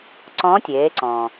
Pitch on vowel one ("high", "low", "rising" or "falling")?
rising